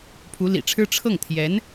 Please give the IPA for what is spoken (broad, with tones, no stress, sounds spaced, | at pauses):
pʰ u˧˥ l ḭ˨˩ ʈ͡ʂʰ ɻ̩˥ ʈ͡ʂʰ ɤ˥˩ ŋ t̪ʰ j ɛ˧˥ n